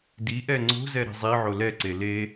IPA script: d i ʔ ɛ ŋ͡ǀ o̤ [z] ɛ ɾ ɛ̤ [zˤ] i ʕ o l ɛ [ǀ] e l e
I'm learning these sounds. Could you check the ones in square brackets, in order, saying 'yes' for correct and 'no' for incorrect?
yes, yes, yes

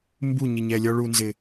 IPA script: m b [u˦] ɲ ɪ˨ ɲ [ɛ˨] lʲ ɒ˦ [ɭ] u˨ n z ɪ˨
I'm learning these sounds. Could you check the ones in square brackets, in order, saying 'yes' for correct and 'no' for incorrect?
no, yes, yes

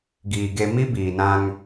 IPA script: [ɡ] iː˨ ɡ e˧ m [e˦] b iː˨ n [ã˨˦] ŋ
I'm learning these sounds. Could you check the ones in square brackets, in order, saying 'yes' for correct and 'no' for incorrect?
yes, no, no

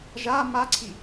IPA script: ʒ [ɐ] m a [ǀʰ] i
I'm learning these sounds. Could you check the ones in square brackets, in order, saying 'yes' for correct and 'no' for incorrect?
no, yes

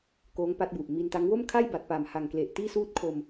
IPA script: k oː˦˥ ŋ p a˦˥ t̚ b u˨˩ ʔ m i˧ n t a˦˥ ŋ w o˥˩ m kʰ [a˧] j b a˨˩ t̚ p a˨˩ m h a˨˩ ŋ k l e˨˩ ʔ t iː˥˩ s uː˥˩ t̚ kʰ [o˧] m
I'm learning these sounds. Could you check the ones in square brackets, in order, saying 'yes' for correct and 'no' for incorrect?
no, yes

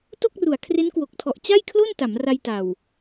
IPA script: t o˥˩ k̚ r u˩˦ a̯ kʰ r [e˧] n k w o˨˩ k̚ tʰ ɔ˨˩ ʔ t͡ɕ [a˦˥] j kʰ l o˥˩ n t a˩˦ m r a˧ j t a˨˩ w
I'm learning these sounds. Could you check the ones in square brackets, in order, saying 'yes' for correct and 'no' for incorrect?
no, no

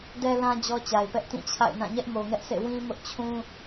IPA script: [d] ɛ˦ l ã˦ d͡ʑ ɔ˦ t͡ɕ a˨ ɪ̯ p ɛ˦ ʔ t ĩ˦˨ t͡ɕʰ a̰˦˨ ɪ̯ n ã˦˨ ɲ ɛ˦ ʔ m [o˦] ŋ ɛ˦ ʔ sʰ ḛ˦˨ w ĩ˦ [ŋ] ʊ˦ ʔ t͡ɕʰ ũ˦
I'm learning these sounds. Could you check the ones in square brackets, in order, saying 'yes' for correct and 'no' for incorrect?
yes, no, no

